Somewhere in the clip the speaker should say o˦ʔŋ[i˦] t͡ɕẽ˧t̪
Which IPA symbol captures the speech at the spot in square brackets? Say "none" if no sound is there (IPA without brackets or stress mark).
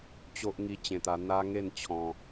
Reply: i˦